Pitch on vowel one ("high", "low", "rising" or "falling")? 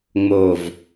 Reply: low